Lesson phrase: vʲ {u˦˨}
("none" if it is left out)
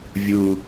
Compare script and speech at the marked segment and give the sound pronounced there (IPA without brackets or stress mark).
u˨˩